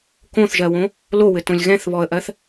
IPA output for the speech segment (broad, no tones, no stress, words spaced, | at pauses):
kõθʒɜwõ | lowɘtõlʲ ɣɛ̃θβɔə̯ʔɜθ